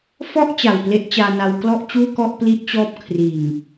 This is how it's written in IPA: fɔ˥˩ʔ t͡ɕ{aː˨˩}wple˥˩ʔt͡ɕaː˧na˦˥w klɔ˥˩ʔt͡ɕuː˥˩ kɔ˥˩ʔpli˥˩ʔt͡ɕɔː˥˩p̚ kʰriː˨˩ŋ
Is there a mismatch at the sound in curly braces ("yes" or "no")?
yes